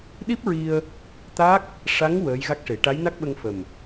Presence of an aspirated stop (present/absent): absent